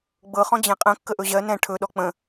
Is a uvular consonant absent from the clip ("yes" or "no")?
no